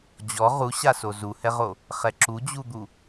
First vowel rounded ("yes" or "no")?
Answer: yes